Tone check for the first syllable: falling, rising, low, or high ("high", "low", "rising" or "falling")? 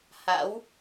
rising